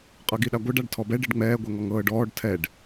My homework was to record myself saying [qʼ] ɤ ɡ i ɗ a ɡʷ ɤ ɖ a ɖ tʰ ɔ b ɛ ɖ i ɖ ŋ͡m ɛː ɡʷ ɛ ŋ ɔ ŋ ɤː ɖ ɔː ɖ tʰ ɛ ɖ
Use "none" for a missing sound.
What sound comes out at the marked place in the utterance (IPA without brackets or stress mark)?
qʼ